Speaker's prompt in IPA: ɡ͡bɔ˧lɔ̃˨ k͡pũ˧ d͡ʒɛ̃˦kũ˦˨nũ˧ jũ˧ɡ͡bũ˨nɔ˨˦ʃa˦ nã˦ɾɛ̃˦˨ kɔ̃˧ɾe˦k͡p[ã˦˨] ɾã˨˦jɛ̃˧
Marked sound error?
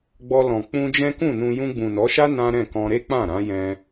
no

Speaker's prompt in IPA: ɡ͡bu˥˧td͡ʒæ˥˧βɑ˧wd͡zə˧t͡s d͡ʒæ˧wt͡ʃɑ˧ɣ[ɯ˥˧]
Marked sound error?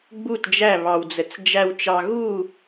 yes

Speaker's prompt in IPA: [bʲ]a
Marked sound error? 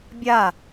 no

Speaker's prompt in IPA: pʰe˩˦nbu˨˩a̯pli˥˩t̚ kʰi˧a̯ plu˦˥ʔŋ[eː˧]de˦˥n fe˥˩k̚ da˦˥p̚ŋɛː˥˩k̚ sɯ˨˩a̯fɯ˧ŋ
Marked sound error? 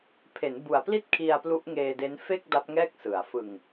no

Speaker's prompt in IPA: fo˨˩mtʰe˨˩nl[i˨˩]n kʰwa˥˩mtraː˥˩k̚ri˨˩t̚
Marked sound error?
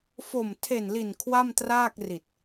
no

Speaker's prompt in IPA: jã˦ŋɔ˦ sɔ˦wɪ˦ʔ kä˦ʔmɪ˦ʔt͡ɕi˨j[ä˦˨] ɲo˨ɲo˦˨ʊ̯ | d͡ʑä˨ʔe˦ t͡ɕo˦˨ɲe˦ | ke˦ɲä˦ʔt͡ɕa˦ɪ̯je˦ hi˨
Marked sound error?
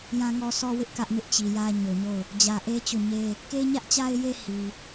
yes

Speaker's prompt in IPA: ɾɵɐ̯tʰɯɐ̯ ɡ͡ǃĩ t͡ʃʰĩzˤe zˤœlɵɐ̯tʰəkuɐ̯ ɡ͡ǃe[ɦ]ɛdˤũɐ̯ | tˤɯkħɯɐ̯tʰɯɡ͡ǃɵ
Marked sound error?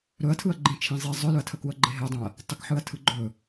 no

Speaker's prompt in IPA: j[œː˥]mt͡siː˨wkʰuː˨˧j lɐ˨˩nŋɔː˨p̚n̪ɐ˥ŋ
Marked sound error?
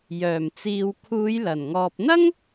yes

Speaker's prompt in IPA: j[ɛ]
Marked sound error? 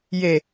yes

